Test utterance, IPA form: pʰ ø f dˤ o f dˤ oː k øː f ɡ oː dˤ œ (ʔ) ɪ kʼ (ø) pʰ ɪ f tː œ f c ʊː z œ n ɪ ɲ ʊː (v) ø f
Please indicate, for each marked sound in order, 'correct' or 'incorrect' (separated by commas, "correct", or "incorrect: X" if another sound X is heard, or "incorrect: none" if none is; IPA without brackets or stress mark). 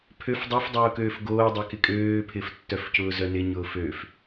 incorrect: k, incorrect: øː, incorrect: f